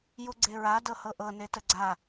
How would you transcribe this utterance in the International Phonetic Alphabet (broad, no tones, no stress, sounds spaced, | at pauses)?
j u ɡ͡ǀ e ɹ a d ɤ h ɤ ʔ ɤ n e t ə ɡ͡ǀ a